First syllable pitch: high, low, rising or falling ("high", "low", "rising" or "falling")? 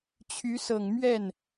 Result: rising